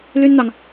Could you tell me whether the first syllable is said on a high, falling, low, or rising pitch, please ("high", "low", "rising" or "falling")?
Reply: high